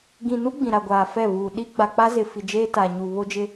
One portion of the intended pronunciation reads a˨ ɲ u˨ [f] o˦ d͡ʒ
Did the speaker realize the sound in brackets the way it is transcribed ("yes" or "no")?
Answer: no